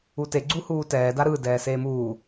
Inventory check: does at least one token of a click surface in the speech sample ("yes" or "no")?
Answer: yes